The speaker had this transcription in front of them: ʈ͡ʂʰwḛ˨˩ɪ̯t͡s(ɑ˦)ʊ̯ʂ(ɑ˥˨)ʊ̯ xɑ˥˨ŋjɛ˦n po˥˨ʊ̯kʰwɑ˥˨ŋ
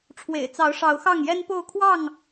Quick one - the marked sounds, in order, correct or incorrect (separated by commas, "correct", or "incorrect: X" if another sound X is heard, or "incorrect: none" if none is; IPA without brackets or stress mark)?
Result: incorrect: ɑ˨˦, incorrect: ɑ˨˦